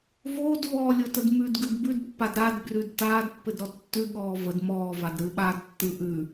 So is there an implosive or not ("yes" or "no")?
yes